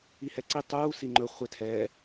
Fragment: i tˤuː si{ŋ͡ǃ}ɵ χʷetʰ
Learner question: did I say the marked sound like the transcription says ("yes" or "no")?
yes